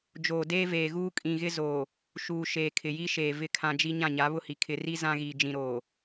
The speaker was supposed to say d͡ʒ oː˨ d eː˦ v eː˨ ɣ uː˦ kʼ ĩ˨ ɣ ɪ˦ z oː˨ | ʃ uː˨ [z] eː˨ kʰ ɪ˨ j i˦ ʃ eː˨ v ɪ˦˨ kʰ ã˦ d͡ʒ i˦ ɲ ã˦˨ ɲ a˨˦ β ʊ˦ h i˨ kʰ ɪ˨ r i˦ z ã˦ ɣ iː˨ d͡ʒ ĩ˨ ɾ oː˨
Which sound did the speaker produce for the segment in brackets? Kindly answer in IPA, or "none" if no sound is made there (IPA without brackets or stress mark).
ʃ